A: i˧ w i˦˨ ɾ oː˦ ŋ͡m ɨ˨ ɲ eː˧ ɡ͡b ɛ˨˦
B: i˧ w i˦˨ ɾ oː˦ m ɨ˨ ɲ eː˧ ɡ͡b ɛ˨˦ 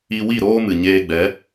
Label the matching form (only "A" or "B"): B